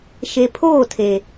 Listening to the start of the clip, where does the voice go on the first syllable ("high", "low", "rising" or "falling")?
low